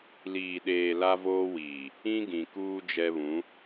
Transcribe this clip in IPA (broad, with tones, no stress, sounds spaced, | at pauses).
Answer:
l iː˨ ɗ eː˨ l a˦ v oː˦ w iː˨ | ĩ˦ ɡ ĩ˨ k uː˦ d͡ʒ ɛ˦ β ũ˨˦